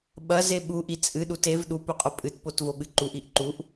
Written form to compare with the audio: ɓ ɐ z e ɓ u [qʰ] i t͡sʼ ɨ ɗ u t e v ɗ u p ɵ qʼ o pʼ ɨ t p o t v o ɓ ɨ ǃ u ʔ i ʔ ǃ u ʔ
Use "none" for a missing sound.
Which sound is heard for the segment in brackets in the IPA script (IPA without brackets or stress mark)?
ʔ